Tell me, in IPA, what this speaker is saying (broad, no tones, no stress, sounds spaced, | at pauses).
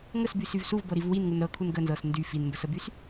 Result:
ŋ ə s b y s y v s u v b ɤ ɾ i v w i n ŋ u n ɾ ɤ kʰ u n ɡ ə n z ɤ s n d y f i n m b ə s ə b y s